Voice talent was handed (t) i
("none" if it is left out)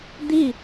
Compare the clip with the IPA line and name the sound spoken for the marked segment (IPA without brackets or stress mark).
d̪